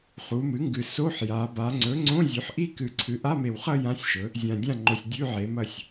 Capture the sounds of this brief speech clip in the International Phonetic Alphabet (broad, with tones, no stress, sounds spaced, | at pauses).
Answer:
χ u˩˧ m ɨ˩˥ ŋ ɡ ɨ˨˩ s o˧˥˧ ħ j a˩˧ b a˩˧ ŋ͡ǀ ɵ˩˥ ŋ͡ǀ õ˧˥˧ zʲ ʉ˩˥ ħ ʔ i˥˧ k ɨ˨˩ ǀʰ ɨ˩˥ ʔ a˧˥˧ m e˨˩ w χ ɐ˥˧ j ã˧˥˧ sʲ ʃ ɵ˩˥ | zʲ ã˨˩ dʲ ã˥˩ ŋ͡ǃ o˨˩ sʲ dʲ ʉ˧˥˧ ʕ e˩˧ m ɐ˥˩ sʲ